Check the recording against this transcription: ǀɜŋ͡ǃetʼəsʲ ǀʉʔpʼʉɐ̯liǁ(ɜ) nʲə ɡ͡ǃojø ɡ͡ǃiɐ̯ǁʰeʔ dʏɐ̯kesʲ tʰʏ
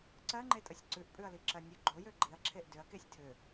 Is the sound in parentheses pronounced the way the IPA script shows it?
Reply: yes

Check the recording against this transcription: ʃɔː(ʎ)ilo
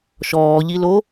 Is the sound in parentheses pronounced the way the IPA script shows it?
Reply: yes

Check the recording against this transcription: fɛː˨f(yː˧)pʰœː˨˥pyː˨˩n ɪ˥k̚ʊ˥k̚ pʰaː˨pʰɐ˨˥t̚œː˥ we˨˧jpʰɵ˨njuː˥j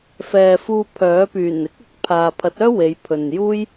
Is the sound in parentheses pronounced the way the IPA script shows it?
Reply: no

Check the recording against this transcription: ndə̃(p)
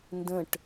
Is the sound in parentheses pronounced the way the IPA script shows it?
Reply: no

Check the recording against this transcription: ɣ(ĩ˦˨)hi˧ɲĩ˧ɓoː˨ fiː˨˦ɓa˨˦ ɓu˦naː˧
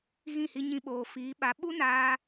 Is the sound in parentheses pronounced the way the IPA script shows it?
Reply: yes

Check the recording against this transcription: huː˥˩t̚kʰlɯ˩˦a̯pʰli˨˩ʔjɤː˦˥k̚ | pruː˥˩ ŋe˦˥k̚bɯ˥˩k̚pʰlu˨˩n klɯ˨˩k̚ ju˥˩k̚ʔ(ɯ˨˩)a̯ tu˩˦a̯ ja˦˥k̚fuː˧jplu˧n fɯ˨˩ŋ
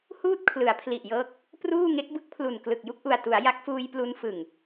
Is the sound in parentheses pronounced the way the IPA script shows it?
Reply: no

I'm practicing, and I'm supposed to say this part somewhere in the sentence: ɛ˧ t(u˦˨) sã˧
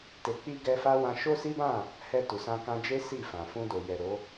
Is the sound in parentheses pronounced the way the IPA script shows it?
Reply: no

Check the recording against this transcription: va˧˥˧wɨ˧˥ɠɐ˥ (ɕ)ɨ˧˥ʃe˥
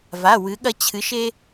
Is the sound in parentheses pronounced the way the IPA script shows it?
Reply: no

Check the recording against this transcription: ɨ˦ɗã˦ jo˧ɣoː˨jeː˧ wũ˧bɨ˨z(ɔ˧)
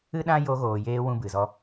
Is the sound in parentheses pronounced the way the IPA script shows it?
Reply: yes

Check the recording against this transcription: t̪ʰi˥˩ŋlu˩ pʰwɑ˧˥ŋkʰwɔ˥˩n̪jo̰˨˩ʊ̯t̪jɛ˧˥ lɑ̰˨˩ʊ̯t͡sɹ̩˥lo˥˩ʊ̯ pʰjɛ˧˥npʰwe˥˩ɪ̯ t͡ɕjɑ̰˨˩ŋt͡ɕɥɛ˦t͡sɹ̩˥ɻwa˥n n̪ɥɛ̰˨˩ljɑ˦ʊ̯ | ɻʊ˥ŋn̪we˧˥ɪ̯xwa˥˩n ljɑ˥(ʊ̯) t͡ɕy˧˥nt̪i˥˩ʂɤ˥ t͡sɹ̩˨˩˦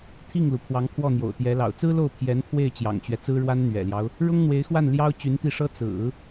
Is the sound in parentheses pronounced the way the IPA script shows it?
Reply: yes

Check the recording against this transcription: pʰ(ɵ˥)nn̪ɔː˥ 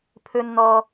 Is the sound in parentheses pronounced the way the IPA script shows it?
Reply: yes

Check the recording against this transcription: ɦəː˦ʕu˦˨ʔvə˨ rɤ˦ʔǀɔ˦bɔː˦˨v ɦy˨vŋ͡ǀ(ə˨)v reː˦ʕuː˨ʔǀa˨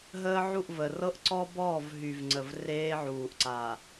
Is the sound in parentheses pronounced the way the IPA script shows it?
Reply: yes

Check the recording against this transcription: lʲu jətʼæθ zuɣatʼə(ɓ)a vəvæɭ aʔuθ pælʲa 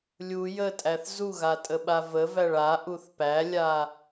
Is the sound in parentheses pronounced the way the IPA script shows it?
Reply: yes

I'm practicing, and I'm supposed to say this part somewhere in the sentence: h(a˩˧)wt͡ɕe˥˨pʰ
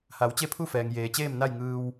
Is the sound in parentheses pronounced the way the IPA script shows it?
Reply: yes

